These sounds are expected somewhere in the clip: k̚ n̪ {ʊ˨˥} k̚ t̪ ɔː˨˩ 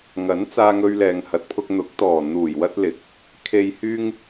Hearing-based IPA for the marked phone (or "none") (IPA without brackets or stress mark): ʊ˨˥